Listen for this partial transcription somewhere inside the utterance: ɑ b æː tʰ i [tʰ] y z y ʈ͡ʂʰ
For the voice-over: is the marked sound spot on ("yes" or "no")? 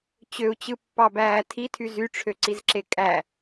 yes